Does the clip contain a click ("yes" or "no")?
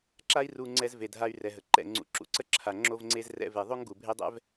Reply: yes